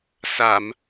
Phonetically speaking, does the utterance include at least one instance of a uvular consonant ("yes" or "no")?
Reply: no